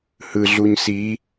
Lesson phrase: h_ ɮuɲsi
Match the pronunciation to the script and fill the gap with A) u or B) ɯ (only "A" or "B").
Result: B